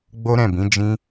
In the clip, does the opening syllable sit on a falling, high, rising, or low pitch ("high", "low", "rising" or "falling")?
high